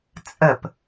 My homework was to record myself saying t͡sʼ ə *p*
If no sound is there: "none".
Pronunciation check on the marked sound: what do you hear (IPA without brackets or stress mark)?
p